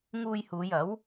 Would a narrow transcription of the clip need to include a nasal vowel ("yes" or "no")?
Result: no